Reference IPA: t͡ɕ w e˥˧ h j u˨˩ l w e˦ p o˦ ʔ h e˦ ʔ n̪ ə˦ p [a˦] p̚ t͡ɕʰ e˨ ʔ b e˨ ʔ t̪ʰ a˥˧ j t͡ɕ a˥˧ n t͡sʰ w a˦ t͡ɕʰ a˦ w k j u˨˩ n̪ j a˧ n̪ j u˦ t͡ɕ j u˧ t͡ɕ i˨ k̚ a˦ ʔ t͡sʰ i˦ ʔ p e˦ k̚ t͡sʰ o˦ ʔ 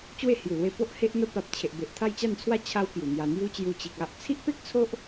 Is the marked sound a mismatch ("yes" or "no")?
yes